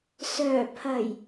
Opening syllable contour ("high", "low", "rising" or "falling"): low